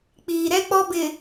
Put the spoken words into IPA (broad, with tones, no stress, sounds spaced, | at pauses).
k͡p iː˨ ɾ ɛ˦ k͡p ɔ˦ b ɪ˨